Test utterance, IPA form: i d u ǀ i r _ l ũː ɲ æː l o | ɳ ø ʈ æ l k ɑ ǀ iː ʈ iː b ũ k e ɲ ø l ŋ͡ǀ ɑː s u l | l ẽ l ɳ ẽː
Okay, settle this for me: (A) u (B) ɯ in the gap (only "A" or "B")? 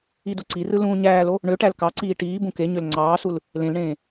B